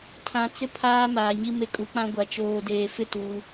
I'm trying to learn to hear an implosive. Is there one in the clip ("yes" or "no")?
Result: no